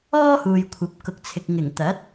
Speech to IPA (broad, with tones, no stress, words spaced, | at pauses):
ɔː˥huː˨jkʷʰɐ˨˥p̚ kʊ˨k̚t͡sʰɪ˨k̚ ŋɪ˨˩ŋt̪ɐ˨˥t̚